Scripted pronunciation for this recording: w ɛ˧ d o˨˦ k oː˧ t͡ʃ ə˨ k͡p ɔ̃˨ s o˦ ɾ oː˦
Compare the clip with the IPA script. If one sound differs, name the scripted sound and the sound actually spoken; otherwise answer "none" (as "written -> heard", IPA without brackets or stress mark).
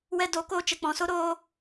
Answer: none